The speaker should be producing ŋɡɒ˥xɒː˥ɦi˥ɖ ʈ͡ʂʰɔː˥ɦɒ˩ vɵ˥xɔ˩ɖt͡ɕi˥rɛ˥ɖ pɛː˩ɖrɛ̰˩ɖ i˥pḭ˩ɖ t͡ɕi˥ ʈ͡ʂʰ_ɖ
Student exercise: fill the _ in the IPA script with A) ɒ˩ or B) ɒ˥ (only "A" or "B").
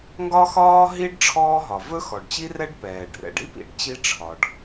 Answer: A